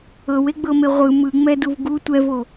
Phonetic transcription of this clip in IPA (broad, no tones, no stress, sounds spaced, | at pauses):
ɤ w e ɡ͡b ɤ m e ʁʷ ɯ m ɯ ŋ͡m ɛ d u v ɡ u tʷ ɛ v o